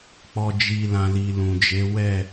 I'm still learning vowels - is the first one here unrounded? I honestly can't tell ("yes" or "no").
no